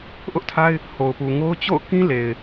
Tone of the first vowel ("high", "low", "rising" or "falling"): high